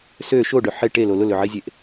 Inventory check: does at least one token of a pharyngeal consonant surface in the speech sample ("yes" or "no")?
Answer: yes